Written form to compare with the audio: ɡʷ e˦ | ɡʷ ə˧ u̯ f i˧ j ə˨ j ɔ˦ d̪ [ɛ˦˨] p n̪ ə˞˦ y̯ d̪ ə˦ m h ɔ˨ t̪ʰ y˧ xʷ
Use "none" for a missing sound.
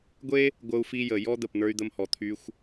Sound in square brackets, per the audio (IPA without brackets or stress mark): ə˦˨